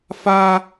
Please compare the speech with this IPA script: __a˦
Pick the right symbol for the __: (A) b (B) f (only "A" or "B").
B